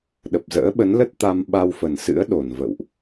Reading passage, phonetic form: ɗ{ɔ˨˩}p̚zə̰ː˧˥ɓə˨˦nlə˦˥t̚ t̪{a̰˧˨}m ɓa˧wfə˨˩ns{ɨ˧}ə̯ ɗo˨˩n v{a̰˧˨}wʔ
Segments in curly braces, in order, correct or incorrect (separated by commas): incorrect, incorrect, incorrect, incorrect